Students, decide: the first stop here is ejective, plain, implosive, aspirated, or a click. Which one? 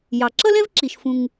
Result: click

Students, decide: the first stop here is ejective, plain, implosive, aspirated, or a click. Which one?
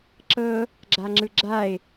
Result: click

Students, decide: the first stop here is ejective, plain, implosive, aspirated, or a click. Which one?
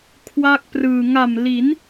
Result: aspirated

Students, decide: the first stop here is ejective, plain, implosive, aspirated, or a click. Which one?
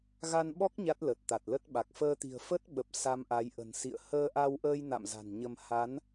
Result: implosive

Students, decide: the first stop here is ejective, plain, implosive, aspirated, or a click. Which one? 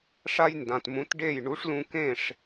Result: plain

